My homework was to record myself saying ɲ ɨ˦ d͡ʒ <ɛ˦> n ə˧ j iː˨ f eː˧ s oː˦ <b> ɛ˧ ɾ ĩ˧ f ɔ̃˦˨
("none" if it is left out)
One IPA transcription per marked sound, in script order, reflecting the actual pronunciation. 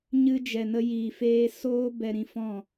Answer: ɛ˨, b

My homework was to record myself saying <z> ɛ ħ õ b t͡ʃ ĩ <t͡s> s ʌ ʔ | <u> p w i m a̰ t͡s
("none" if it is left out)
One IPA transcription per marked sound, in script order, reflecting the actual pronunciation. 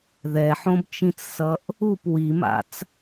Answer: ð, t͡s, u

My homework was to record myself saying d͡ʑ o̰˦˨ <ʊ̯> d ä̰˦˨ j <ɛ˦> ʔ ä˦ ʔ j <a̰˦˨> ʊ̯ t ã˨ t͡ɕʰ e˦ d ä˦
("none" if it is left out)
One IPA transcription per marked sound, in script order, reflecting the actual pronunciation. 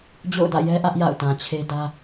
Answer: ʊ̯, ɛ˦, a̰˦˨

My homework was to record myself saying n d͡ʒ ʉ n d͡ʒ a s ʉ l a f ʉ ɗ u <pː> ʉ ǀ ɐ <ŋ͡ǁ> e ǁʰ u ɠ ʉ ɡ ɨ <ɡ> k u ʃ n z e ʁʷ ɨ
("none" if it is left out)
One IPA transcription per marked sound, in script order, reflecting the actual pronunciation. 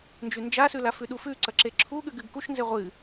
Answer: f, ǁ, ɡ

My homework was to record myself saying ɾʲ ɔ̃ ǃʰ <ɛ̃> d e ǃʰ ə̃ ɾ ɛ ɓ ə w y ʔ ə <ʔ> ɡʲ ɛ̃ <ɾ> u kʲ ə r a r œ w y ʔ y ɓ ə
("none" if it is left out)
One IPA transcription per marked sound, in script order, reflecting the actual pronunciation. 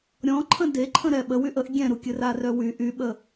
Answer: ə̃, ʔ, ɾ

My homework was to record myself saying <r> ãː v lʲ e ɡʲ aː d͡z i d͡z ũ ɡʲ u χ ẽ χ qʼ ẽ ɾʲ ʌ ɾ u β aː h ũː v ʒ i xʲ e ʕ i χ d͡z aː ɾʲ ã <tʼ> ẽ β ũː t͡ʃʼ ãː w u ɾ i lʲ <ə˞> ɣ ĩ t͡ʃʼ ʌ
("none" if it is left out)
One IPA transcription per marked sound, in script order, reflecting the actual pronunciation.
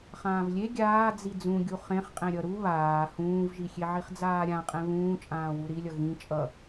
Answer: χ, qʼ, ʌ

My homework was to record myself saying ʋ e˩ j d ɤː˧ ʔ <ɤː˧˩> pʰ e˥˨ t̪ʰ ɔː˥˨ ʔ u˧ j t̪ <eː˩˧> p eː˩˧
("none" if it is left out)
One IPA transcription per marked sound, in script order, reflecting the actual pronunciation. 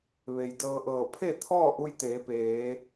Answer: ɤː˧˩, eː˩˧

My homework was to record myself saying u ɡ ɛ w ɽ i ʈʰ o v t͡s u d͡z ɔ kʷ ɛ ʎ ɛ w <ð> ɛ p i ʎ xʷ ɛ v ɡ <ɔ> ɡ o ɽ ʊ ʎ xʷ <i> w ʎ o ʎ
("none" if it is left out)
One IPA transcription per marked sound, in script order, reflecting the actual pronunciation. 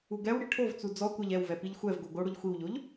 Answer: v, o, i

